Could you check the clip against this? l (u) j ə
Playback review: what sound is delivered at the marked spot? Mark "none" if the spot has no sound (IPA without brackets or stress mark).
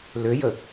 ø